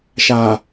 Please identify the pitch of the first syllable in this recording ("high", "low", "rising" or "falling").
low